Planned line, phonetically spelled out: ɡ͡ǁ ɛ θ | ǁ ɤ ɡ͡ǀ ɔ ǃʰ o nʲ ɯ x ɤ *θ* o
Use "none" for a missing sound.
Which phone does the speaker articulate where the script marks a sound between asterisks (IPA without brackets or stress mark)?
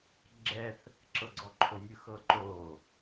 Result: ǃ